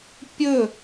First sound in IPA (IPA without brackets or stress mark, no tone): pʲ